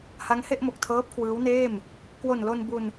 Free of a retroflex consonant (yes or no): yes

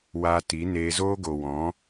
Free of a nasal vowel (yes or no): no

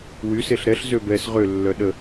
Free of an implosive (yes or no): no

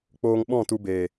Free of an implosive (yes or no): no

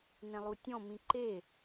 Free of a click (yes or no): no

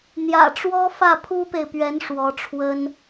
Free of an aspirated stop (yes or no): no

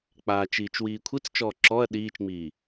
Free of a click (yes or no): no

